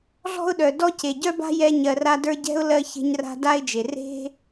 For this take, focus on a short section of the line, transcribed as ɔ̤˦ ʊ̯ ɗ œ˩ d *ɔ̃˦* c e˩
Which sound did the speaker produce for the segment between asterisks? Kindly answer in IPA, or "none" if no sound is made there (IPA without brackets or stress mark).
ɔ˦